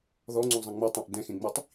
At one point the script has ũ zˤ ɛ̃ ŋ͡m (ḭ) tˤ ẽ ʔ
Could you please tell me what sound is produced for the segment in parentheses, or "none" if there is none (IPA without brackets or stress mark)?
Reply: i